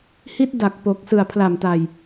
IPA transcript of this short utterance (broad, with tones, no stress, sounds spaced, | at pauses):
h i˦˥ t̚ d a˨˩ k̚ p o˨˩ k̚ s ɯ˨˩ a̯ pʰ l a˨˩ m t a˨˩ j